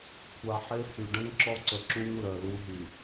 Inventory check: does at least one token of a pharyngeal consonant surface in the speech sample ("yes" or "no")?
yes